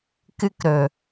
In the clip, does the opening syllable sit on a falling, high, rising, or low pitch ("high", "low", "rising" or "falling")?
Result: high